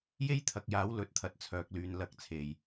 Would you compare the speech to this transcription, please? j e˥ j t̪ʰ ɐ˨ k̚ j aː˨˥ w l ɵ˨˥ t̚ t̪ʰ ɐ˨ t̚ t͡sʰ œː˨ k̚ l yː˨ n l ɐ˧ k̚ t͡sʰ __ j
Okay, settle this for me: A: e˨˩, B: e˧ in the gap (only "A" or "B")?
B